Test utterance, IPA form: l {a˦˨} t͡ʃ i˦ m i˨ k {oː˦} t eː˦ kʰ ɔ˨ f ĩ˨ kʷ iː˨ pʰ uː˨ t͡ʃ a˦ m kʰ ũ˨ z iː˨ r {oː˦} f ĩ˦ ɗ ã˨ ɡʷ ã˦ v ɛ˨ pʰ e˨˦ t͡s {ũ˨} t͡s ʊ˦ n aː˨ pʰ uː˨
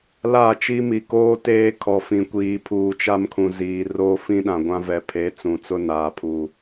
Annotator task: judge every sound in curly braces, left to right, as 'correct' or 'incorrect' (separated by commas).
correct, correct, correct, correct